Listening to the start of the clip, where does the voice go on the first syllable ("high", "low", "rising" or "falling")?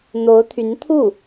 rising